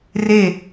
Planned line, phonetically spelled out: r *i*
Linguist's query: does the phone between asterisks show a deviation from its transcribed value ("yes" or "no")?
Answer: yes